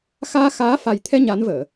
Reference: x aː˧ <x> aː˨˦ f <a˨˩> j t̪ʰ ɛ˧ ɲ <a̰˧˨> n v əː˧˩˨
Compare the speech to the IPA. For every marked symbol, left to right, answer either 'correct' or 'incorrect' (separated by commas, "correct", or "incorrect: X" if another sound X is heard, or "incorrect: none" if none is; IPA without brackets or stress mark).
correct, correct, incorrect: a˨˦